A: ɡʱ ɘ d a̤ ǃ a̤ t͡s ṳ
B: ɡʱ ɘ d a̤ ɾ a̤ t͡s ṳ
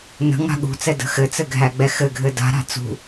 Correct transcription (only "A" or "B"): B